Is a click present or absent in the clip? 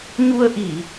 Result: absent